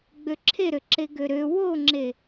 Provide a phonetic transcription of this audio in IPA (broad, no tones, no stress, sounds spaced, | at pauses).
ɡ͡b ø ǁʰ e ɾ ø ǁ e ɡ ø ɾ ø w o ŋ͡ǁ e